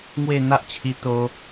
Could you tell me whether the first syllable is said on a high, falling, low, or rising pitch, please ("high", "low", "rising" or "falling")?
falling